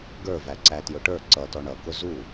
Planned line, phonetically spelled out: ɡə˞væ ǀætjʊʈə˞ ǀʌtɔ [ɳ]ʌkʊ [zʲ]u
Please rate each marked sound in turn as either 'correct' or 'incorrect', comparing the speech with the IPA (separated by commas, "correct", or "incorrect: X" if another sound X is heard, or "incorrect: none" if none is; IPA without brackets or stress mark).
correct, incorrect: z